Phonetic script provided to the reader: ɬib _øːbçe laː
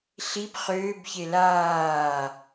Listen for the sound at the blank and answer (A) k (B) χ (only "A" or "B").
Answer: B